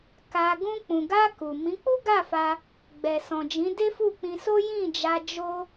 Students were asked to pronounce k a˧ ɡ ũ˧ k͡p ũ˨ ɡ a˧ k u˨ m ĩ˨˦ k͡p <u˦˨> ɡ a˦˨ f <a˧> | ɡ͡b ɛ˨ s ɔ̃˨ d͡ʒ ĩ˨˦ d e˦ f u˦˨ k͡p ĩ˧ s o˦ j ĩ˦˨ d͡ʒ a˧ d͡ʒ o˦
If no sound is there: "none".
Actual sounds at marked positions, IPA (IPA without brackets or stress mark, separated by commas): u˦, a˧